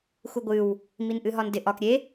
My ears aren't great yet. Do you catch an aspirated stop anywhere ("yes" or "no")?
no